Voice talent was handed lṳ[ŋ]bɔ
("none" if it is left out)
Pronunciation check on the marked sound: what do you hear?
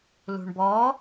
ɳ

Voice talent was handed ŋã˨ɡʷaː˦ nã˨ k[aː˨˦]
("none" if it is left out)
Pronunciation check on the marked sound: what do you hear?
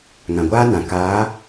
aː˨˦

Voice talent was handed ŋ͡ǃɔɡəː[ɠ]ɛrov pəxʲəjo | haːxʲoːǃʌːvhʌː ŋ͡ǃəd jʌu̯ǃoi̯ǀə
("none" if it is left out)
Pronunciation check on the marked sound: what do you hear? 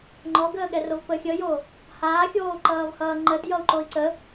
ɠ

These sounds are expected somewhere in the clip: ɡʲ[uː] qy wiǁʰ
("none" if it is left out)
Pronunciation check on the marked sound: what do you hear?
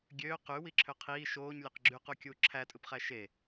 øː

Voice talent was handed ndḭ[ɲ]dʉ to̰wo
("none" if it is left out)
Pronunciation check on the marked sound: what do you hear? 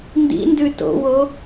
n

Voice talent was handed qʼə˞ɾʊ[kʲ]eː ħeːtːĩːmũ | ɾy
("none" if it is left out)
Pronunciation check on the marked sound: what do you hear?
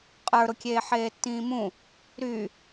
kʲ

